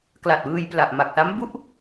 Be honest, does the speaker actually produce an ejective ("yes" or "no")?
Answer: no